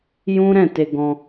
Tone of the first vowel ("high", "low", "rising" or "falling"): high